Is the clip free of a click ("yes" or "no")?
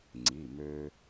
no